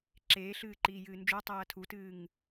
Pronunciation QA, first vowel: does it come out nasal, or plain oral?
oral